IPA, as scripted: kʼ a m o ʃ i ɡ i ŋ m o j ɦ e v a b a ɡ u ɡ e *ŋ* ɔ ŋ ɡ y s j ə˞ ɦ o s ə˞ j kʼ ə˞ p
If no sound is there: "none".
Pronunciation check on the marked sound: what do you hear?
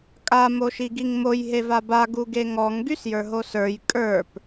ŋ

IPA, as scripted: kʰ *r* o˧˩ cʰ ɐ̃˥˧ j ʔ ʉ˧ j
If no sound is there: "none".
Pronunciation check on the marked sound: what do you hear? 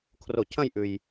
r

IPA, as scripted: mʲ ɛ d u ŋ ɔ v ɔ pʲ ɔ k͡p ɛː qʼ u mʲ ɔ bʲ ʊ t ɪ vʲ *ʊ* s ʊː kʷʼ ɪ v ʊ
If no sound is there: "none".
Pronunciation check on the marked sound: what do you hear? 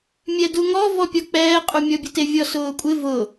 ɔ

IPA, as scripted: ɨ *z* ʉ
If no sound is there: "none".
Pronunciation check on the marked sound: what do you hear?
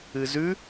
z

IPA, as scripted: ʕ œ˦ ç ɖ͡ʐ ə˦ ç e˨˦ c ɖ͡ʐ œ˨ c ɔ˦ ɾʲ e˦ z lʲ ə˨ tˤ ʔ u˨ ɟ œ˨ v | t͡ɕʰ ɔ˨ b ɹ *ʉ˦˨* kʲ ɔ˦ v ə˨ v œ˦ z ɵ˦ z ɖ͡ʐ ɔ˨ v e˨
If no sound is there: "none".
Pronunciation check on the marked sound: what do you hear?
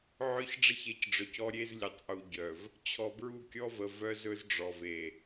u˦˨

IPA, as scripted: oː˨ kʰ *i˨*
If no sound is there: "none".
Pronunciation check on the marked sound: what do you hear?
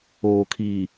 i˨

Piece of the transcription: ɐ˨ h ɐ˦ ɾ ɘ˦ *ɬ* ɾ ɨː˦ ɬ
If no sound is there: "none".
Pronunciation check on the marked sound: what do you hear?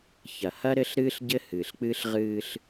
ɬ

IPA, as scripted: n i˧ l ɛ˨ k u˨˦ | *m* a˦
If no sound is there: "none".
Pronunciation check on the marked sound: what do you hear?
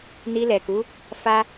f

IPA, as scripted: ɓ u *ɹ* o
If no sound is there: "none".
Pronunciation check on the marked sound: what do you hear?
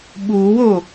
w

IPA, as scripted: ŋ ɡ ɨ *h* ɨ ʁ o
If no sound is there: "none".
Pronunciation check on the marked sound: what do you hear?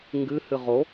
h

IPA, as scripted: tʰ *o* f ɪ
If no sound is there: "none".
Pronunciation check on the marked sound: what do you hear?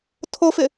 o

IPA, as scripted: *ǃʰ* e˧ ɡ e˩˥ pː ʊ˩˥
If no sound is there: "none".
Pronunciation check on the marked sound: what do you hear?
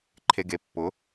ǃʰ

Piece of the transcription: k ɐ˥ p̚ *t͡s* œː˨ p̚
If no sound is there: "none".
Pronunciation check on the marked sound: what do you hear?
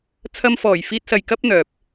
n̪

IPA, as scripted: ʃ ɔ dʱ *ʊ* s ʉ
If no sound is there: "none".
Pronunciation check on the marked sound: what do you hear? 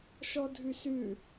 ʉ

